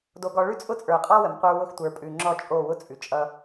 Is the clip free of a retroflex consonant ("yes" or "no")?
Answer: no